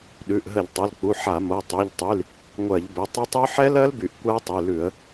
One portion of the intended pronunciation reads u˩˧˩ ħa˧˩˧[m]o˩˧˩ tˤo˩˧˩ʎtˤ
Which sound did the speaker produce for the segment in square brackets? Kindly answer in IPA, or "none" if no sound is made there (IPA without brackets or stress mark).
m